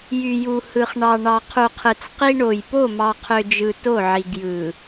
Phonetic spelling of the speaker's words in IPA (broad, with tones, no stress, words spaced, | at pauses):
jy˨ju˨hɯ˨χ ɳɑ˨ ɳɑ˨qʰu˨qʰɯ˨t͡s qi˦ɳo˨j po˦˨mɑ˨qʰø˨d͡ʒɯ˨ to˦˨ʕi˨ɡjɯ˨